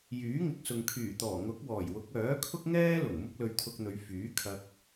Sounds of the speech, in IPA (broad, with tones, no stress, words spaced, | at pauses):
jyː˨˥ŋɪ˨k̚sʊ˨ŋ kʰyː˨˩t̪ɔː˨˩ ŋʊ˨˥k̚wɔː˨˩jwʊ˨˥k̚ œː˨˥kʰʊ˥k̚ŋɛː˥lʊ˨˩ŋ mʊ˥k̚lɵ˧ɥt̪ʰʊ˧k̚n̪ɵ˨˧ɥ fyː˨˥kʰɐ˧k̚